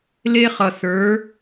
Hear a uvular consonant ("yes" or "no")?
yes